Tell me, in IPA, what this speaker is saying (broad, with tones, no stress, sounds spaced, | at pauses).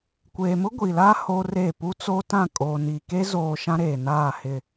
kʷ eː˨ m ʊ˦ ɡʷ i˨ l a˦ h o˦ r e˦˨ p u˦ t͡s o˦ t ã˦˨ kʼ oː˨ n i˨ k e˦ z oː˨ ʃ ã˦ ɾ eː˨ n aː˦˨ h ɪ˦˨